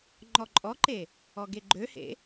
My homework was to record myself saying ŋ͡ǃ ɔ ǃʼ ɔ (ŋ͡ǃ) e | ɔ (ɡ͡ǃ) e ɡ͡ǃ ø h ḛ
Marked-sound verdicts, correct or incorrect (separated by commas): incorrect, incorrect